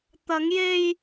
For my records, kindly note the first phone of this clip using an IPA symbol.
t̪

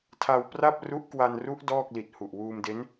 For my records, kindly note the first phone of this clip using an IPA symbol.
tʰ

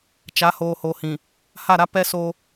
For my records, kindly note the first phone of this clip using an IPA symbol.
t͡ʃ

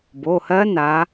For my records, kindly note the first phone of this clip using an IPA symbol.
b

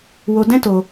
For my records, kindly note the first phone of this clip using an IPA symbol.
w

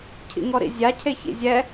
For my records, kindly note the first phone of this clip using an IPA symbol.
cʰ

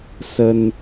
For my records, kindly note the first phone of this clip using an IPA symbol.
s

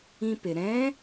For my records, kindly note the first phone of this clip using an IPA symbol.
ĩ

